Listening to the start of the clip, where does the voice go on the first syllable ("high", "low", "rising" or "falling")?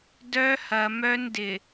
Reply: high